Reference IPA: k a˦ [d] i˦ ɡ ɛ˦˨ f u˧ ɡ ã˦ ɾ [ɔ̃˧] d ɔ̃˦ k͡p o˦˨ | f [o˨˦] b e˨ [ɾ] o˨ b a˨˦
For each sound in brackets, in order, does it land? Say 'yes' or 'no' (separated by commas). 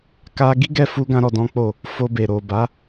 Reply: no, no, no, yes